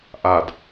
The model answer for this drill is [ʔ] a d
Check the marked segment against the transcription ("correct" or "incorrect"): correct